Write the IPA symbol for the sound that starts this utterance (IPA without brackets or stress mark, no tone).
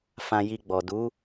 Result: f